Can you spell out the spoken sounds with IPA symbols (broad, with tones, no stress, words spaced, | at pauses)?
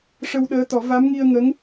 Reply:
ʂə˧wɗəː˧˥t̪ɔ˨˩˦ va˧˥mŋi˧ə̯ŋə˧˥ŋ